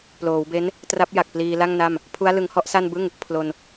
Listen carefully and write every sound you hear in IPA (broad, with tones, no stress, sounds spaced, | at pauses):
p l oː˩˦ w b e˦˥ n | t r a˦˥ p̚ j a˨˩ k̚ p l iː˧ l a˥˩ ŋ n a˥˩ m | pʰ u˦˥ a̯ l ɯ˧ ŋ h ɔ˥˩ ʔ s a˥˩ n b ɯ˥˩ ŋ | pʰ l o˧ n